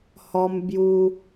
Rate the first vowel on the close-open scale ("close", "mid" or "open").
mid